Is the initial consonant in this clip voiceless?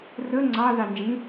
no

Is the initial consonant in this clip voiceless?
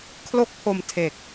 yes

